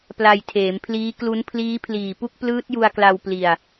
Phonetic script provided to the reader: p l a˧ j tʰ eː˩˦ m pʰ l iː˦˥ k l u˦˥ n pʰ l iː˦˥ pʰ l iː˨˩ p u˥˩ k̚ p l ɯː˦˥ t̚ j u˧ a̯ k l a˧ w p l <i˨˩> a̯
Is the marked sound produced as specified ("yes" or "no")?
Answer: no